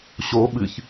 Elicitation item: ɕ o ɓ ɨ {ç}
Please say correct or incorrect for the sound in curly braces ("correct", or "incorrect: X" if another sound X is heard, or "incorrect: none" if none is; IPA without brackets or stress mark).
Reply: correct